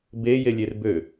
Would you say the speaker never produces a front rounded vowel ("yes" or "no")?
no